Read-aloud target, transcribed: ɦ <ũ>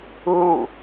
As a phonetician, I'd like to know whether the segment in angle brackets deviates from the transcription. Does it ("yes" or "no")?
yes